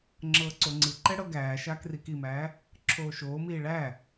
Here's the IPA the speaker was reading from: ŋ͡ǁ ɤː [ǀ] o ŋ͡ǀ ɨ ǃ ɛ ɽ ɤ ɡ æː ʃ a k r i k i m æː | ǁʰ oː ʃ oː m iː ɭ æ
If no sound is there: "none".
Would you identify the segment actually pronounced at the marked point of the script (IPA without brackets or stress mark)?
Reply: ǀ